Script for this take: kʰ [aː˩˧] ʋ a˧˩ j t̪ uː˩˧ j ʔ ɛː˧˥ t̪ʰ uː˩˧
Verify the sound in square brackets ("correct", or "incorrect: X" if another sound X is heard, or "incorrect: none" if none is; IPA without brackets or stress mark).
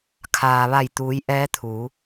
incorrect: aː˩